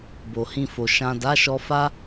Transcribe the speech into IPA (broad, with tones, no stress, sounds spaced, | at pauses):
b o˨ h ĩ˧ f o˨ ʃ ã˨ d a˨˦ ʃ ɔ˧ f a˦